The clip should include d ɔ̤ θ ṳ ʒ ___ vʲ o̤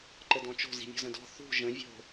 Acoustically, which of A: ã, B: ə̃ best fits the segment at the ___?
B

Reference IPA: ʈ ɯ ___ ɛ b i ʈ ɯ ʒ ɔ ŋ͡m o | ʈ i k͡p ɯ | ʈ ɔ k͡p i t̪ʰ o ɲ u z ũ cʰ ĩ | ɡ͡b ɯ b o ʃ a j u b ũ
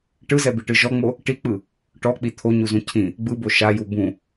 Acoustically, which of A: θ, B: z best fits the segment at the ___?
B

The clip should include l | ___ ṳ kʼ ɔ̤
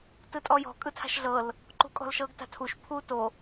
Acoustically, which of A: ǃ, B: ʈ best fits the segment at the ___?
A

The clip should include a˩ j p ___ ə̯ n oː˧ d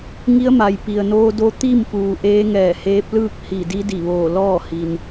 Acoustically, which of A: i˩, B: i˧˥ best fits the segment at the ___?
A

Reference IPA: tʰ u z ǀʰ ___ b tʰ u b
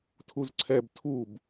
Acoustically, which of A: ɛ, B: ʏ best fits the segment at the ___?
A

